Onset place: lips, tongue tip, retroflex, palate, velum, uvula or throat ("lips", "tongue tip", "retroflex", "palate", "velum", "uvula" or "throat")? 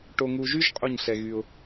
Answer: retroflex